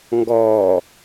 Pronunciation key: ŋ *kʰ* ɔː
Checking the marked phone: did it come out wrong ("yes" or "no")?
yes